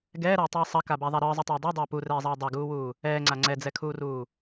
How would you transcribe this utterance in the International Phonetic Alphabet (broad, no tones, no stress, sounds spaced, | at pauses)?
ɡ ɛː ɾ ɐː tˤ ɯː sˤ ɐ k a b a ðˤ a ɾ ɯː zˤ ɯ tˤ ɐː dˤ ɛ dˤ ɐː p u r ɛː zˤ ɐː dˤ ɐ ɡ uː w uː | ɛː ŋ͡ǀ a ŋ͡ǀ ɛ d͡z ɛ kʰ uː r uː